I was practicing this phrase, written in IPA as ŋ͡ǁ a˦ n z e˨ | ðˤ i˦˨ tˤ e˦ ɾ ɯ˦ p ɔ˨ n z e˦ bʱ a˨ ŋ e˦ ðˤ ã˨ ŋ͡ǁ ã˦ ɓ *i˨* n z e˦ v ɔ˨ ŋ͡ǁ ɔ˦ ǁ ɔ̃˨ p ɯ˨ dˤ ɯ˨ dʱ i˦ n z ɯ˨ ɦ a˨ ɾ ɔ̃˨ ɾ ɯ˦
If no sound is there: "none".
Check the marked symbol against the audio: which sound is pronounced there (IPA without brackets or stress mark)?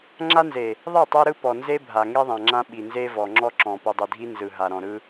i˨